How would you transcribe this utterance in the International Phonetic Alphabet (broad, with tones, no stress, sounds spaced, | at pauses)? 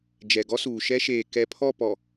d͡ʒ ɛ˨ ɡ ɔ˦ s uː˨ ʃ ɛ˦ ʃ eː˨ k ɛ˨ pʰ ɔ˦˨ p ɔ˨